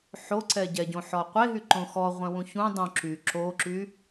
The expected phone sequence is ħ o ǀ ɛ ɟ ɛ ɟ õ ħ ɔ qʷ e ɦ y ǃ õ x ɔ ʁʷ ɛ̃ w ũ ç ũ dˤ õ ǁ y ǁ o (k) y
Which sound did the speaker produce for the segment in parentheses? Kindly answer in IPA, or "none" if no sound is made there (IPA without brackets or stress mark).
ǁ